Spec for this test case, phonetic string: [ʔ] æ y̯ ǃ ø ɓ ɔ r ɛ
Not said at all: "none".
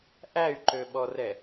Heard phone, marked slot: ʔ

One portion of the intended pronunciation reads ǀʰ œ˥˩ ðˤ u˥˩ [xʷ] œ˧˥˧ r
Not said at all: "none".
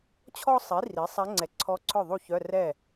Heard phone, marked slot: ç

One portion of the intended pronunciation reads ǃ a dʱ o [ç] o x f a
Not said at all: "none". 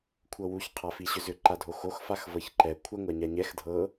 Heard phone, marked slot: x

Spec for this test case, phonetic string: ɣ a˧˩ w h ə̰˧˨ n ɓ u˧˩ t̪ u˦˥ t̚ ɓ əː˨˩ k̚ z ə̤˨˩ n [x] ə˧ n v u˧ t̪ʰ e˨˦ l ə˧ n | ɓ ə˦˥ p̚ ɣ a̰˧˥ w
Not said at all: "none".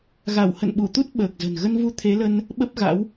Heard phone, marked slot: ɣ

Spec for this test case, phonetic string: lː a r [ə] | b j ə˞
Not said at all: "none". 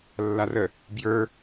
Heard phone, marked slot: ə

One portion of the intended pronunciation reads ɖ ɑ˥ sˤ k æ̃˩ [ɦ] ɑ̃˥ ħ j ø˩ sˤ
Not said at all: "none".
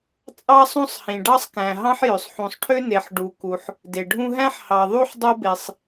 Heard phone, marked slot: ɦ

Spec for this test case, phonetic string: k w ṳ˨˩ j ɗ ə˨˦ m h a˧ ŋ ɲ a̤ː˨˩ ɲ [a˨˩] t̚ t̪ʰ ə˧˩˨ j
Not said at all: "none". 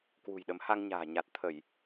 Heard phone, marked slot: a˨˩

